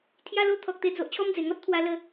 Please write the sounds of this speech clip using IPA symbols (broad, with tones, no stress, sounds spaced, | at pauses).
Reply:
t̪ʰ j a˧ l o˧ t̪ʰ ɔ˨ k̚ t̪ e˧ d͡z o˨ ʔ t͡ɕʰ ɔ˦ m d͡z e˨˩ ŋ ɔ˦ t̚ t̪ʰ w a˧ l ə˧